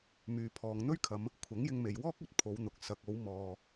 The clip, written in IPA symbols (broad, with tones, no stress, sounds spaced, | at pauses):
m yː˨ pʰ ɔː˨ ŋ n̪ ɵ˥ ɥ kʰ ɐ˨˧ m | kʷʰ ɐ˨˥ ŋ j ɪ˧ ŋ m e˨ j w ɔː˥ k̚ ɵ˧ t̚ pʰ o˨˧ w n̪ ʊ˨ k̚ s ɐ˨ k̚ o˨˧ w m ɔː˨